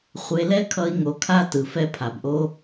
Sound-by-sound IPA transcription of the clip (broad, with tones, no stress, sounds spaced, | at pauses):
χʷ e˧ l ɛ˦ kʰ ʌ˧ i̯ ŋ o˧ kʰ a˦ t ɯ˨ f ɛ˧ pʰ a˨ b ʔ o˧